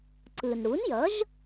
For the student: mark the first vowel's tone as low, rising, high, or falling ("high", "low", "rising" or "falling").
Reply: low